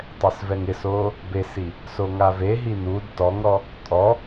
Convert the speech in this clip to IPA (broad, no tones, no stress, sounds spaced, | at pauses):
tˤ ɛ s v ɛ ŋ ɪ s oː | b e s i | s o ŋ a v e ɦ i n u d t ɔ ŋ ɾ ɔ | tʼ ɔ